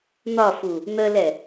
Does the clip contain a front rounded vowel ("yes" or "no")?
no